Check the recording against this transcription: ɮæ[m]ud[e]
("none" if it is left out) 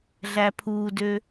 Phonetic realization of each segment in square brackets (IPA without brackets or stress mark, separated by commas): pʰ, ø